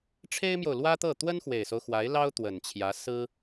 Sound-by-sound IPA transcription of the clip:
ʈ͡ʂʰ e˥ ɪ̯ m j o˨ ʊ̯ l w ä˥ t̪ ɤ˥˩ t̪ w ə˥ n x w e˨˩ ɪ̯ s o˦ ʊ̯ x w a˧˥ ɪ̯ l ɑ˥ ʊ̯ t̪ w ə˨˩ n t͡ɕʰ j ä˧˥ s ɹ̩˥

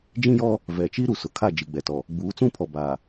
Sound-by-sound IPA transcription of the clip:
d͡ʒ ĩ˦ j ɔ˦ | v ɛ˨ t͡ʃ i˦ ɾ u˨ s ʊ˨ kʰ a˦˨ d͡ʒ i˨ ɡ͡b ɛ˨ t ɔ˨ | ɡ͡b uː˨˦ t͡s ũ˦ pʰ ɔ˨ b a˨

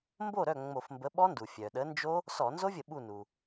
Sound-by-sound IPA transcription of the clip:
m b o˥˩ ɾ œ˥˩ ŋ͡m o˧˩˧ f m b ə˨˥ ɓ ɔ˦˥ n d u˩ fʲ œ˩ ɗ ə˨˥ n d͡ʒ o˦˥ | s ɔ˧˩˧ n z o˦˥ vʲ ə˧˩˧ ɓ u˥˩ n u˩

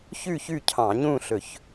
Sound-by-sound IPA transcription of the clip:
ç ʉ˥˨ ç ʉ˥˨ cʰ ɑ̃˧˩˧ ɲ ũ˥˨ ɬ ɵ˧˩˧ ç

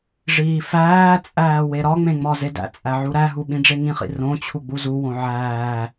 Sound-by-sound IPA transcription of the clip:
ʐ iː f æː t͡sʼ æː w e ɾ ɒ ŋ͡m ẽ ŋ͡m ɒ z e d æ̰ t͡sʼ æ ʕ u ɾ æ ɦ u ɓ ĩ ɖ͡ʐ e ŋ ĩ χ ḭ r õ t͡ɕʰ u ɡ͡b u z u w õ ʕ æː

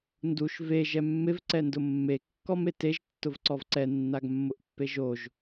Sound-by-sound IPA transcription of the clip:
n d u ʃ v e ʒ ɛ mː ɪ v ǀ ɛ n d ʊ mː e kː ɔ m e t e ʒ tː ʊ v ǀ ɔ v ǀ ɛ nː a ɡ mː ʊ ʔ pː e ʒ o ʒ

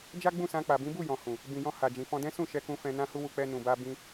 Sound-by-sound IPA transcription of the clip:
d͡ʒ a˦ ɡ͡b ũ˦˨ s ã˧ k͡p a˨ b ĩ˨˦ b u˦˨ j ɔ̃˨ h ũ˨ | b ĩ˨ j ɔ̃˧ h a˨ d͡ʒ ĩ˨ f ɔ̃˧ d ɛ̃˦ s ũ˦˨ ʃ ɛ˧ k ũ˧ f ɛ̃˧ n ã˧ h u˧ w u˨ k͡p ɛ˧ n ũ˨ b a˧ b ĩ˧

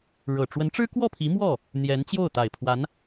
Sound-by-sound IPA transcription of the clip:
ɻ ɤ˨˩ ʈ͡ʂ w ə˧˥ n ʈ͡ʂ ɻ̩˥ k w ɔ˥˩ pʰ i˧˥ m w ɔ˥˩ | n̪ j ɛ˧˥ n t͡ɕ j o˥˩ ʊ̯ t̪ a˨˩ ɪ̯ pʰ w a˧˥ n

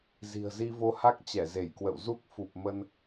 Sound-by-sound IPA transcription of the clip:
z i̤˨˩ ə̯ z i˧ v o˧ h a˦˥ k̚ t͡ɕ ɛ˧˩ z e˧˩ j k w ə̰˧˨ w z u˦˥ k̚ f u˨˩ p̚ m ə˧ n

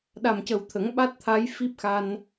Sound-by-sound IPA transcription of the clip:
ɗ a˨˩ m c ə˨˩ w t̪ʰ ə˨˩˦ ŋ ɓ a˦˥ t̚ t̪ʰ a˧˥ j f i˦˥ p̚ x a˧ n

